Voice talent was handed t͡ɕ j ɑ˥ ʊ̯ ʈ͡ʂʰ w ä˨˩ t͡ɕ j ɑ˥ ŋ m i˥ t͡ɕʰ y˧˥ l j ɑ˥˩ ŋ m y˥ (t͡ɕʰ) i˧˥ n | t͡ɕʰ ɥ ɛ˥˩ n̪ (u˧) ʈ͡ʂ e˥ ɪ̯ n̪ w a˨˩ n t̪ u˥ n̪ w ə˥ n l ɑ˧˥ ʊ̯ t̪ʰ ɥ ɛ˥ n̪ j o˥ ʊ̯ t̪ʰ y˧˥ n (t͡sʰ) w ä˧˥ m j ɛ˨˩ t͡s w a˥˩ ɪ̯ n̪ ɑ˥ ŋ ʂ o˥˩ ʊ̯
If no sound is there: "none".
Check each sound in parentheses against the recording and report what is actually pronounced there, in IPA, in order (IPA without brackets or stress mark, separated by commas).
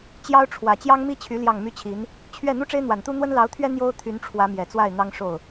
t͡ɕʰ, u˥, ʈ͡ʂʰ